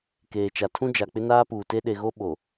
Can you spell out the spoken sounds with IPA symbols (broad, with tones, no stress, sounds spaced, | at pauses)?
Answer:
k eː˨ t͡ʃ a˨ tʰ ũ˦ d͡ʒ a˨ k͡p ɪ˦ n aː˦ p uː˨ t e˦ ɗ e˨ ɣ o˦ ɓ o˨